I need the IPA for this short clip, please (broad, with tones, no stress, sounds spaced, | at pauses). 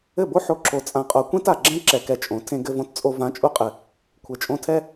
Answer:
ɘ˦˨ b o˦ ħ o˧ ǁ o˨ t͡sʼ ã˨ qʼ o˨ kʷ ẽ˦ t a˨ ɡ͡ǁ ɛ̃˦ ǁ ɛ˧ k ɛ˧ t͡ʃʼ õ˨˦ tʰ ẽ˧ ɡ ɘ˧ v õ˧ t t͡sʼ o˧ v ã˨˦ t͡ʃʼ u˧ qʼ ɘ˨ | kʷʰ ɘ˨ t͡ʃʼ õ˧ tʰ ɛ˦